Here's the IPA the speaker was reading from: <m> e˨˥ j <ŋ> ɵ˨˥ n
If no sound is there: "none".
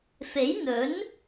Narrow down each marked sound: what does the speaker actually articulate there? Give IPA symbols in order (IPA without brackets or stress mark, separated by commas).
f, n̪